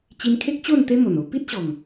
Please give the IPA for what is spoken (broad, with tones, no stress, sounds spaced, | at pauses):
t͡ɕ i˧ n kʰ e˦ k̚ t͡ɕ o˥˧ n t̪ e˦ m o˨˩ n o˧ p i˦ t̚ ɕ ɔ˨˩ ŋ